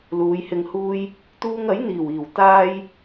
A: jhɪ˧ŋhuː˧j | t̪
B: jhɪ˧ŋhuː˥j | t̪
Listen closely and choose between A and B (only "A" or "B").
B